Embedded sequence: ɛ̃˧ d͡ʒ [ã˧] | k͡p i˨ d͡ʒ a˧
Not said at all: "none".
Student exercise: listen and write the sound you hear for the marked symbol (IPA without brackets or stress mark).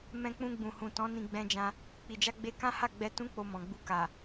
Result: ã˧